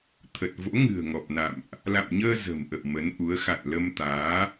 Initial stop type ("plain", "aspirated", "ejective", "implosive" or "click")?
aspirated